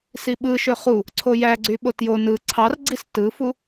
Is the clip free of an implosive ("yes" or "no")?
no